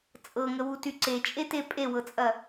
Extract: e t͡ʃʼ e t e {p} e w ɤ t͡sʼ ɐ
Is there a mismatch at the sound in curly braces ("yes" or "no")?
yes